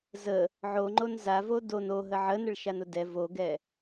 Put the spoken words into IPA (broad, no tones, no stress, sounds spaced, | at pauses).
z ə | ʕ o ŋ͡ǃ o n z a v o d o n o ɦ ə ʕ ə n ə ɭ ʃ a n ʊ d ɛ v o ɡ ɛ